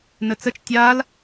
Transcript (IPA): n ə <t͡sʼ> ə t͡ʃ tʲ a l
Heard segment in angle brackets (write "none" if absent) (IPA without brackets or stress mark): t͡s